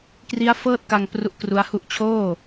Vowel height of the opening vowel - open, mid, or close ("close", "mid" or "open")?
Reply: close